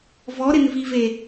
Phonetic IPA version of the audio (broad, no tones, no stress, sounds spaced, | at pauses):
v ɔ ɾ ɪ n v i v e